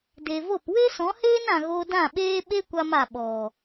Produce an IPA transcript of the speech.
d e˨ v o˦˨ p w e˦ s ɔ̃˨˦ h eː˦ n ã˨ ɣ o˧ d ã˦˨ ɓ eː˦ ɓ e˦ kʷ a˧ m a˨ ɓ ɔ˨

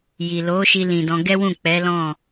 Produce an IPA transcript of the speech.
j i˨ l o˨˦ ʃ i˧ l ĩ˨ d ɔ̃˧ ɡ ɛ˦ w ũ˦˨ k͡p ɛ˨˦ l ɔ̃˦˨

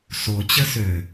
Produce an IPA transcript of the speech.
s o t͡ɕ ə s ø

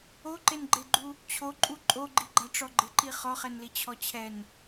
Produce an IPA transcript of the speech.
o ǃ e n ɡ͡ǃ e ɡ͡ǃ u | t͡ɕʰ o ǃʼ u ǃʼ o ɡ͡ǃ i ɡ͡ǃ a ʈ͡ʂ ɔ ɡ͡ǃ ɪ ǃ i χ ɔ χ ɛ n l i t͡ɕʰ ɔ t͡ɕʰ ɛ n

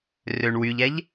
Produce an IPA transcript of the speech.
r ø ɳ w y ʎ æ ʎ

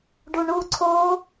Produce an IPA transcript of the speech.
ɖ u ɳ u ǀʰ o

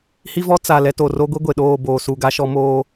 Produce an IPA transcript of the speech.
h i˦ v ɔ˦ t͡s a˨ l ɛ˦ t o˨ r o˦ ɡʷ i˦ ɡʷ e˨ ɗ oː˦˨ b oː˨ s u˨ ɡ a˦ ʃ ɔ˦ m oː˦

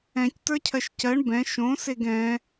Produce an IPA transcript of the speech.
ɛ̃ c t ə˞ cʰ ɜ ʃ c ɜ ɳ b ɛ̃ ʃ õ s e ɡ ɛ̃

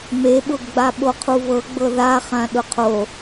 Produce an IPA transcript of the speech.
m e ɓ ʊ ɡ ɡ͡b a ɓ o qʰ u v ɤ ɡ͡b ɤ ð a χ ã ɗ ʊ qʰ o

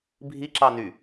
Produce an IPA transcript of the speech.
bʱ i ǁ ɑ n y

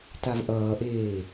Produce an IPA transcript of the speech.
t a v ʔ ʌː ʔ eː

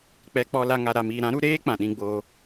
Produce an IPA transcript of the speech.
k͡p ɛ˧ k͡p ɔ˧ l a˧ ŋ a˨ ɾ a˨ m iː˨ ɾ ã˨˦ ɾ u˧ ɾ eː˦ k͡p ã˨ ɗ ĩ˧ ɡ͡b oː˧

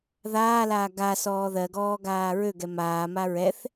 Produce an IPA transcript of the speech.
ð aː l aː ɡ a s ɔː ð ɜ ɡ ɔː ɡ aː ɹ ø ɡ ɛ m aː m a ɹ ɛ θ

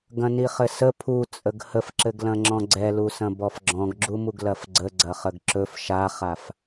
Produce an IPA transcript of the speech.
ɡ ɐ̃ n i χ ɘ s ə pʰ u t͡sʼ ə ɡ h ə f ǁ ɘ ɡ l ɐ̃ ŋ͡ǁ ɔ̃ ɡ͡ǀ ɛ l u s ɐ̃ b ɔ f ɡ͡ǁ ɔ̃ ɡ ɡ͡ǁ u m u ɡ l ɐ f ɡ͡ǀ ə ɡ͡ǀ ɐ χ ə ɡ ǁ ɵ f ʃ a χ a f

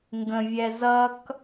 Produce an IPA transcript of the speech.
ŋ ɡ ə̃ vʲ ɛ z ʌ k

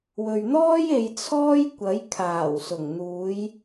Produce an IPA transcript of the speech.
w ɵ˨ ɥ n̪ ɔː˥ j e˨˧ j t͡sʰ ɔː˥ j kʷ ɐ˨˥ j kʰ aː˨˩ w s ʊ˨˩ ŋ n̪ uː˨˧ j

